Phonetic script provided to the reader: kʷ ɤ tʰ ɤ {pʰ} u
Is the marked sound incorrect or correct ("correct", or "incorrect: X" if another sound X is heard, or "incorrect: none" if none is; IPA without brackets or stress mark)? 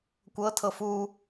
incorrect: f